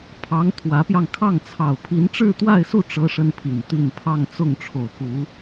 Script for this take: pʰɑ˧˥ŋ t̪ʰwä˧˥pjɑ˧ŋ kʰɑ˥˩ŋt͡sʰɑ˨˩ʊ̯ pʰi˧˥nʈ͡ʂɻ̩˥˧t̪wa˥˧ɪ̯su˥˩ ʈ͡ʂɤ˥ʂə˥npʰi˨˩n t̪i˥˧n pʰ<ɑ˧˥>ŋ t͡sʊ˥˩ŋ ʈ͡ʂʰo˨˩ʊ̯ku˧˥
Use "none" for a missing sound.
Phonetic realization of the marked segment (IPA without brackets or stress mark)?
ɑ˥˧